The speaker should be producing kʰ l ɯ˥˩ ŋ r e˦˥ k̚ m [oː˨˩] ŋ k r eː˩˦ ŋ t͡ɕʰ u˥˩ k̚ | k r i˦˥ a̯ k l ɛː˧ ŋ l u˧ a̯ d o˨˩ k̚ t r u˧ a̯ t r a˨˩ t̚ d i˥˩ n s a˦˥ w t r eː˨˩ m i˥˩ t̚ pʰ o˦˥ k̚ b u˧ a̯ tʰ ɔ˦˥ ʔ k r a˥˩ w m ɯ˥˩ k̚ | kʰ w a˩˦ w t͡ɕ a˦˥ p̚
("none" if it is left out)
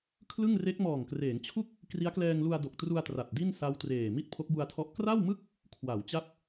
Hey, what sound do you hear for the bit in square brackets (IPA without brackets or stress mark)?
ɔː˨˩